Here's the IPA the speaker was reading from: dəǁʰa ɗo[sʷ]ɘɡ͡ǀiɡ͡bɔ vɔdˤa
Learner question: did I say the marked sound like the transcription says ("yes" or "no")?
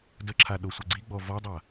yes